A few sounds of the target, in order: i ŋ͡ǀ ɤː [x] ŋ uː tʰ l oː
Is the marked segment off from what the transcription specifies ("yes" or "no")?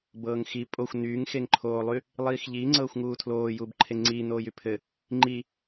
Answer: yes